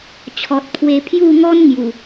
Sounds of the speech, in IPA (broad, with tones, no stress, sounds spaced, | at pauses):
t͡ɕʰ ɔ˨ t̚ pʰ w e˧ pʰ j u˥˧ ŋ ɔ˦ n ŋ j u˨˩